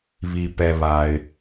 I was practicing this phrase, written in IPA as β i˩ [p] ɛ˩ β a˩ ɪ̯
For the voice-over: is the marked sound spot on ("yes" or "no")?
yes